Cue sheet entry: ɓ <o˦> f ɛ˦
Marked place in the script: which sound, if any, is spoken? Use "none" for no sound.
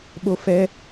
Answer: o˦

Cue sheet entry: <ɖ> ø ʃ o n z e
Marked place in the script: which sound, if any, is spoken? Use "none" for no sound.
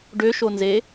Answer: ɖ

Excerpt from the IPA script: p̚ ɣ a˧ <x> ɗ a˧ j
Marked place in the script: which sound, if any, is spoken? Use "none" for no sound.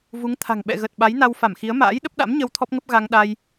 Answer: ŋ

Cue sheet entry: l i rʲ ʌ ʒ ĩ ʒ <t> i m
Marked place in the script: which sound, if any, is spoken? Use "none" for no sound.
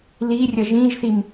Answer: θ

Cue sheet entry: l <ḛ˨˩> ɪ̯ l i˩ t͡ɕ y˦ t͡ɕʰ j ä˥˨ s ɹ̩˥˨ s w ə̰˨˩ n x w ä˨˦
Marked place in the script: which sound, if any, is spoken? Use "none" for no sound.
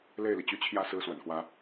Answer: e˥˨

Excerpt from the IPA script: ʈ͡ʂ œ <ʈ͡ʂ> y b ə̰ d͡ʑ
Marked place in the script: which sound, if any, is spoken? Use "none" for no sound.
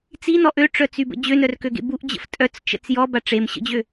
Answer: t͡s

